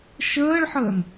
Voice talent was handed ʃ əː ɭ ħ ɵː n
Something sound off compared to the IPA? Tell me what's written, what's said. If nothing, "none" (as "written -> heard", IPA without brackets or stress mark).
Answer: ɵː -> əː